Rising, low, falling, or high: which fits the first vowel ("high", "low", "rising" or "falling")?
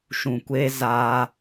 low